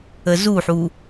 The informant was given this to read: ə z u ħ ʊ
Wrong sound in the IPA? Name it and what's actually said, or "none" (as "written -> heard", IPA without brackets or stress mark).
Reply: ʊ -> u